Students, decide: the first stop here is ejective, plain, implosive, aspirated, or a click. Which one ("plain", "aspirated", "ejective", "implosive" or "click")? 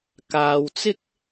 plain